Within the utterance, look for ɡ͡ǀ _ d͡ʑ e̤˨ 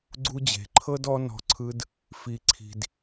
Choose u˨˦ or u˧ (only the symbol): u˧